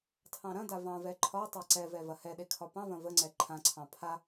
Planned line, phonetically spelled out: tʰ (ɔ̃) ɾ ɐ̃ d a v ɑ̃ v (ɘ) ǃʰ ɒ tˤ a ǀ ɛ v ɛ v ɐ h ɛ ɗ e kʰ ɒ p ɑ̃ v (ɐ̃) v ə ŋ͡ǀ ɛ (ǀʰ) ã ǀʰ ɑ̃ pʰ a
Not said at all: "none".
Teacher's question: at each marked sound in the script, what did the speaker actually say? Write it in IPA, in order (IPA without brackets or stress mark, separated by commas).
ɑ̃, ɛ, ɐ̃, ǃʰ